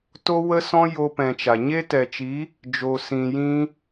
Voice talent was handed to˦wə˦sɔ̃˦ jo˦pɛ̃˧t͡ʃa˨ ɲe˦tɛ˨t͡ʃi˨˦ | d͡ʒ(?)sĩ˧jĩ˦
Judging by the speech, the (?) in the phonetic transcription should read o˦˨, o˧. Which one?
o˧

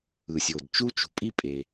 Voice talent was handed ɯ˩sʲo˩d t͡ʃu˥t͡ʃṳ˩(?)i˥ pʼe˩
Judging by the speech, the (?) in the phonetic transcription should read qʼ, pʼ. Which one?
pʼ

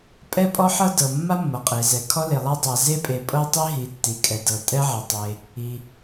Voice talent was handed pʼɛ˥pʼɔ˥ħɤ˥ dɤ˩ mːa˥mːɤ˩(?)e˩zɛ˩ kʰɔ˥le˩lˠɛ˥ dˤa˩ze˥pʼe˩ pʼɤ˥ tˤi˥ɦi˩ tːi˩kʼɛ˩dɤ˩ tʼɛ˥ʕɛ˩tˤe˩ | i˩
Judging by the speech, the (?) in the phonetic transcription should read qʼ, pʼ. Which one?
qʼ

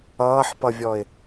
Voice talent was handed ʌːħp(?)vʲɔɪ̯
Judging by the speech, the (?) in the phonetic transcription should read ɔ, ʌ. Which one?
ʌ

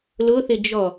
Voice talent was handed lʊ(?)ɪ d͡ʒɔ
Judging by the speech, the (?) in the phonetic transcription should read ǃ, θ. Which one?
θ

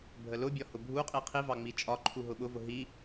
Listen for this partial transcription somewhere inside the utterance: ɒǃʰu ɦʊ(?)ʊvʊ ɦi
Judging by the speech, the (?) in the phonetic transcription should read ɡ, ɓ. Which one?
ɓ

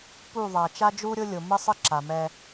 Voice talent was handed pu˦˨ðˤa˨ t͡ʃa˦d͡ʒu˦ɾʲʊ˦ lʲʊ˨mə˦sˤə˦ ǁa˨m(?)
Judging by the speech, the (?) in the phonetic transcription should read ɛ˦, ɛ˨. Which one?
ɛ˦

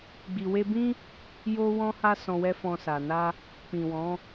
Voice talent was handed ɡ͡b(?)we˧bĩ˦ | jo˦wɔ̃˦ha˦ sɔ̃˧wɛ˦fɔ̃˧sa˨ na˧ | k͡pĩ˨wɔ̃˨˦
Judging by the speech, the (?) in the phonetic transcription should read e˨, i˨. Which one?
i˨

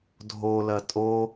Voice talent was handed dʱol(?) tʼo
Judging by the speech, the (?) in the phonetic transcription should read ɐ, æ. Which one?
ɐ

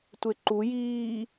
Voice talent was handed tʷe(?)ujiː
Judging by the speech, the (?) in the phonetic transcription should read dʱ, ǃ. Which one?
ǃ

